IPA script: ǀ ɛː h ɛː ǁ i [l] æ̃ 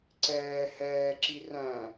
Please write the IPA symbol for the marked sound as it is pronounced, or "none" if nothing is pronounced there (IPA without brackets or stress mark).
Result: r